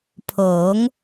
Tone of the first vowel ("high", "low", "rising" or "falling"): rising